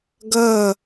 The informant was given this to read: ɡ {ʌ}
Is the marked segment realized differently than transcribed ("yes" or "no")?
no